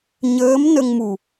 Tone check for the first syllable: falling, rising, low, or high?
rising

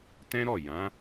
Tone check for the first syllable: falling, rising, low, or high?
high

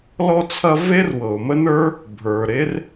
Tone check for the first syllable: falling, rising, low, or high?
high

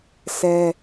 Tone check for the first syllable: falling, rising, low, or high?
high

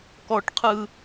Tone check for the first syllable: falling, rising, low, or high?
high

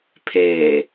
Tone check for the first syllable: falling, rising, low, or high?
low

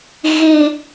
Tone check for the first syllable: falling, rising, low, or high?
high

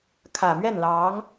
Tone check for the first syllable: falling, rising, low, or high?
low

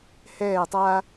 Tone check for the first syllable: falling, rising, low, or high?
falling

